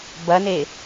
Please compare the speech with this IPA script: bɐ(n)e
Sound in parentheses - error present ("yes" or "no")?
no